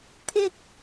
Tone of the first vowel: high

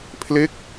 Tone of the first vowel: falling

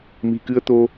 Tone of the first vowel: low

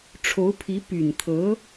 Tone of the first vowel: rising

